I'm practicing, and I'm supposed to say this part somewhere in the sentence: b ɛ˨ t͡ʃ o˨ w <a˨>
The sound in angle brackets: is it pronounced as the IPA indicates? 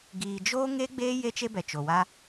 no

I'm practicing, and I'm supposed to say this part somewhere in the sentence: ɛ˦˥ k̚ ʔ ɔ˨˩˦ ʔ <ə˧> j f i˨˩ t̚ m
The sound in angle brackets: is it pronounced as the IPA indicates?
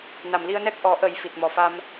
no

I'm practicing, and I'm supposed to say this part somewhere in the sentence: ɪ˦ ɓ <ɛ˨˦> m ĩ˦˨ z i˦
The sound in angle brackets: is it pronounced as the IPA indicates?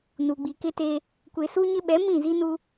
yes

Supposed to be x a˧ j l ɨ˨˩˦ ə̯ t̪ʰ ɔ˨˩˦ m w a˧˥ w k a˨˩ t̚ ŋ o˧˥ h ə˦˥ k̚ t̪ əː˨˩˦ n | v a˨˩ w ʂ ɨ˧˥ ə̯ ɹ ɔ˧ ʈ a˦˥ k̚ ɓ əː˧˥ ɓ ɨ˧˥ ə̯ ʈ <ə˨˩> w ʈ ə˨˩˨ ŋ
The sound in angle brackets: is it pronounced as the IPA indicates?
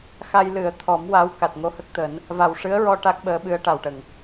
no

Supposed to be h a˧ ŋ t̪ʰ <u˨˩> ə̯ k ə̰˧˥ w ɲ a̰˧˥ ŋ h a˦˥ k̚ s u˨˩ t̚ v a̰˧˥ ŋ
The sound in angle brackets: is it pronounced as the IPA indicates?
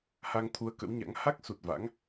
no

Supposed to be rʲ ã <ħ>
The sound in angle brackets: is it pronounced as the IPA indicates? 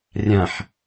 yes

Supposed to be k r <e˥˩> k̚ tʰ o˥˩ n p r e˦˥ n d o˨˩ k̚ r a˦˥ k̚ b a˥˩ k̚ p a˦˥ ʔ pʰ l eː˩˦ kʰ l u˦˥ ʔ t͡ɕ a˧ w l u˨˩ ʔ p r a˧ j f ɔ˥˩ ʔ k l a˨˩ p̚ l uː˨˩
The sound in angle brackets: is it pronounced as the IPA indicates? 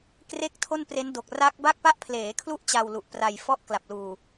yes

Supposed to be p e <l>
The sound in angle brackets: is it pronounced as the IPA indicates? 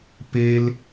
yes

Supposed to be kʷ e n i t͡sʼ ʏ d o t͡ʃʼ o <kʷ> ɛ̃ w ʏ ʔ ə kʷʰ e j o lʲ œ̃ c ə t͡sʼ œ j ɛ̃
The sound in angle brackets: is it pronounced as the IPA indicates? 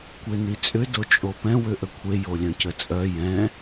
no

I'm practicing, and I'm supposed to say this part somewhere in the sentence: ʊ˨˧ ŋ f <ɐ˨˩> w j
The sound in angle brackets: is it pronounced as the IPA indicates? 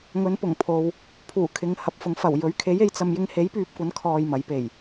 yes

